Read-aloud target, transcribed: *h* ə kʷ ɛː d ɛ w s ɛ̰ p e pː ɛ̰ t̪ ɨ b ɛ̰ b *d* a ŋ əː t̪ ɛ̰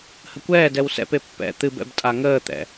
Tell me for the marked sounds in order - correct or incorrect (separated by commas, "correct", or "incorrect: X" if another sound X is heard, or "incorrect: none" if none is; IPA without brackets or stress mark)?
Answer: correct, incorrect: tʼ